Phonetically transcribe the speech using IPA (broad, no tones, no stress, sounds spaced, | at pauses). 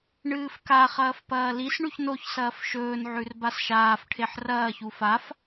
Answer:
ɳ ɨː f k a χ ɐː f p ɐː l i s ɳ ʉ ç n o ç s ɐː f ʃ ɵː n ʕ ʉ r b a s ʃ aː f ʈʰ e ħ r ɐː ç u f a f